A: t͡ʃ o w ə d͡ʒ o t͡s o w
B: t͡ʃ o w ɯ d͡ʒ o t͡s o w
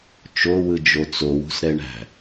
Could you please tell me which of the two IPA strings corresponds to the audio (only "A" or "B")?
B